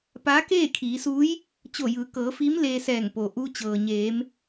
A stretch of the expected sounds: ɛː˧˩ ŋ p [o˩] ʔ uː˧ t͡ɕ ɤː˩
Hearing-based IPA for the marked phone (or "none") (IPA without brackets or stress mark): o˩